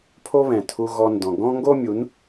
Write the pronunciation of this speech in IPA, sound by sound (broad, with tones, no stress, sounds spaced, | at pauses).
pʰ o˦ β ɛ̃˨ tʰ u˧ ɣ ɔ˧ n d ɔ̃˨ ɡ ɔ̃˦ ŋ ɡ o˦ mʲ u˨˦ n